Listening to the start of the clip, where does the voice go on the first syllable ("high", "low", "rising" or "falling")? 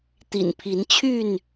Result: low